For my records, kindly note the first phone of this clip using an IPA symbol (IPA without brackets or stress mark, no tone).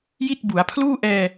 j